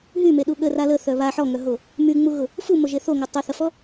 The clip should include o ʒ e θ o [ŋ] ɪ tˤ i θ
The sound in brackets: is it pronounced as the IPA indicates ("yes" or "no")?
yes